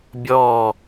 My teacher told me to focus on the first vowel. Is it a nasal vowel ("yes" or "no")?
no